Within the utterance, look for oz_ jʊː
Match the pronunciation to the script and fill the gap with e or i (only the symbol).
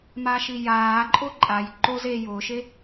e